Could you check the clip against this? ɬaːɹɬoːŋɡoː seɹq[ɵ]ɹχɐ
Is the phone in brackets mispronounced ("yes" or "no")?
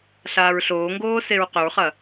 no